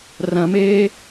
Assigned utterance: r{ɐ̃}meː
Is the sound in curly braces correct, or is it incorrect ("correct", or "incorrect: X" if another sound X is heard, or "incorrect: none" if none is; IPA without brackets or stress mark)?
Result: correct